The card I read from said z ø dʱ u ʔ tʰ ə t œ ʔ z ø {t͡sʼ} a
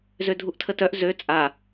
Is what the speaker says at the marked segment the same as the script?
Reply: yes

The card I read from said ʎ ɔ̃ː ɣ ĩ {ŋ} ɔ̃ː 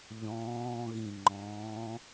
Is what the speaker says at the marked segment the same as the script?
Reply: no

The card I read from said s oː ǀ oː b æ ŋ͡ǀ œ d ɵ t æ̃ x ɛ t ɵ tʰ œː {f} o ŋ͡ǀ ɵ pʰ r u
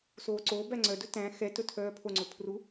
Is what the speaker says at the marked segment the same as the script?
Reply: no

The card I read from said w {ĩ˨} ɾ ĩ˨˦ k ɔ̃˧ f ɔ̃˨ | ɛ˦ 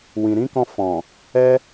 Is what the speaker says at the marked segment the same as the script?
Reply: yes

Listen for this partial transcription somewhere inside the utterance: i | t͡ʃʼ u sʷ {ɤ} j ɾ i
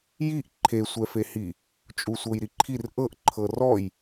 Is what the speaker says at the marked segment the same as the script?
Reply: yes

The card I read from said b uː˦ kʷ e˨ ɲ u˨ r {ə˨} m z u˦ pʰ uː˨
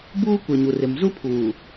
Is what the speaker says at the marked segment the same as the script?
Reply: no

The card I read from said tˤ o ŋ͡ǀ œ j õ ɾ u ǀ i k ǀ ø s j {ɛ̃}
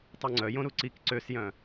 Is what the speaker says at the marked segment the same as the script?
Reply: no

